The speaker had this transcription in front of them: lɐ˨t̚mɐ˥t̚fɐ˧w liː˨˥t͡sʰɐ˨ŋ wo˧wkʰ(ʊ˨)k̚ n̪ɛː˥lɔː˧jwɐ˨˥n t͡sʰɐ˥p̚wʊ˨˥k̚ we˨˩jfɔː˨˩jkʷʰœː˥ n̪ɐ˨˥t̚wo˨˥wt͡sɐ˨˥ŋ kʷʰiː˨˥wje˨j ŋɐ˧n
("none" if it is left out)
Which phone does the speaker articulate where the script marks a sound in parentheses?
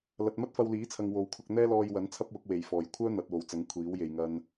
ʊ˧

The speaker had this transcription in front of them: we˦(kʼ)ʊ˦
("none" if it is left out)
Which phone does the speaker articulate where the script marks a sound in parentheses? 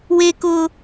k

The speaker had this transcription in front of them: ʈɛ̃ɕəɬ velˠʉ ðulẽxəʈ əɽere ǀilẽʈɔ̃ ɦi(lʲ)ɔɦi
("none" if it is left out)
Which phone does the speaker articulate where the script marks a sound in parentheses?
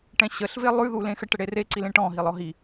lˠ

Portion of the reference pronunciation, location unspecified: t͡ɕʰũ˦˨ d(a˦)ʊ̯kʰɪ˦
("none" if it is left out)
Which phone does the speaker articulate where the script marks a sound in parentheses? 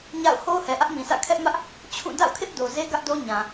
a̰˦˨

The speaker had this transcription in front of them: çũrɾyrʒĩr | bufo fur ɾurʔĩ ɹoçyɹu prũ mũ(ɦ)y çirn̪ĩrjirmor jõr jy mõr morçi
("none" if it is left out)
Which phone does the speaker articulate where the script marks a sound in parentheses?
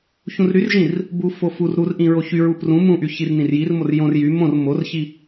ʔ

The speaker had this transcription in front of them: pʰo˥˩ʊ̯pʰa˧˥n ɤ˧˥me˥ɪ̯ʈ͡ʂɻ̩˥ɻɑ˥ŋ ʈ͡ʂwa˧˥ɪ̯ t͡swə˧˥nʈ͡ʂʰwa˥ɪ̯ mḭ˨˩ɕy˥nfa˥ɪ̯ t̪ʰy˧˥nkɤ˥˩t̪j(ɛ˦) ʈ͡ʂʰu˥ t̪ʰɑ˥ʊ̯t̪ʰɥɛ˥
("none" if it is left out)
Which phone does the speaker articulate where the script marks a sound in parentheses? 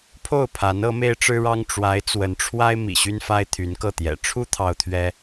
ɛ̰˨˩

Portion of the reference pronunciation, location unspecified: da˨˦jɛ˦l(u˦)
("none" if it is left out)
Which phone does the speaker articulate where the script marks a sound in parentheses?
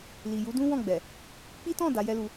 u˧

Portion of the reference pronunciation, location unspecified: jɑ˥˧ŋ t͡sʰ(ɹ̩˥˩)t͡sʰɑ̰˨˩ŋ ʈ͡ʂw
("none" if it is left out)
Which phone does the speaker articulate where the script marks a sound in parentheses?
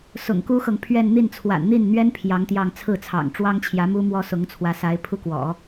ɹ̩˥˩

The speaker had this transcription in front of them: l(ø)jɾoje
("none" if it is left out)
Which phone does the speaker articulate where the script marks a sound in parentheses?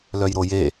œ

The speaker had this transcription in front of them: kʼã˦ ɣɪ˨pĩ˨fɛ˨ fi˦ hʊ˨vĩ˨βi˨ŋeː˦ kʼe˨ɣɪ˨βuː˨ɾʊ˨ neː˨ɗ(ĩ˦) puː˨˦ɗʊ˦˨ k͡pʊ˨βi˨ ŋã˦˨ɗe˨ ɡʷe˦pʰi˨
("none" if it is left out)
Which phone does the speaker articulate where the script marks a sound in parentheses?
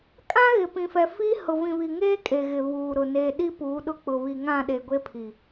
i˦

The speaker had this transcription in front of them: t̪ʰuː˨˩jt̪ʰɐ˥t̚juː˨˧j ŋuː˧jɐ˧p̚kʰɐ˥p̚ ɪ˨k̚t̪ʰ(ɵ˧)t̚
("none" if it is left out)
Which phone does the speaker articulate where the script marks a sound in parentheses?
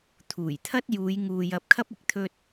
ɵ˧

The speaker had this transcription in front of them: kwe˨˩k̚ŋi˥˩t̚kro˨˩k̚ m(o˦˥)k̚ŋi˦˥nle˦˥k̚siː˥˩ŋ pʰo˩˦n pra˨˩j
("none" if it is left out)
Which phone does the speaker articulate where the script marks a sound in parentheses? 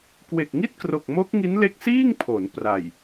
o˦˥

